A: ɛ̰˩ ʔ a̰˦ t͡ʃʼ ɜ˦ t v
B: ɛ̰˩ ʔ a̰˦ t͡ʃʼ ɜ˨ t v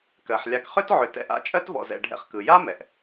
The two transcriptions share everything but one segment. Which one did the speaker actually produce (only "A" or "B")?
A